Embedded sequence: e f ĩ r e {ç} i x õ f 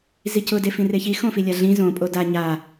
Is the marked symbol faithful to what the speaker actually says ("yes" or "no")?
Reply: yes